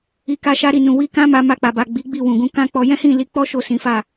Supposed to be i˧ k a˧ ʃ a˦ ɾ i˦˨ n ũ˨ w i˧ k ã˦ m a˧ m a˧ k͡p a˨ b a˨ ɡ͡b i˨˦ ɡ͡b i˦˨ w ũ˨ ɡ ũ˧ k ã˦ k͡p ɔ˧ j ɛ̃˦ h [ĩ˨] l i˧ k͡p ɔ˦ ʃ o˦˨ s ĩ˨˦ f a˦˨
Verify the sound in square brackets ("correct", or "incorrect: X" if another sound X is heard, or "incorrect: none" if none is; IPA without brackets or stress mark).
incorrect: ĩ˦˨